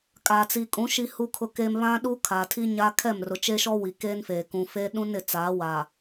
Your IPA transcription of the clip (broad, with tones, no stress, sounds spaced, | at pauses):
kʼ a˨ t͡s i˨ kʼ ũ˨˦ ʃ i˦ h u˦ kʰ ʊ˦ k eː˦ m β ã˦ ɗ u˦ kʰ a˨ tʰ i˦ ɲ a˦ kʰ ɛ˦˨ m r ʊ˨ t͡ʃ e˦ ʃ ɔ˦ w i˨ k eː˦ n f eː˨ k ũ˨ f eː˦ ɗ ũ˦ n ɪ˨ t͡s aː˨˦ w a˨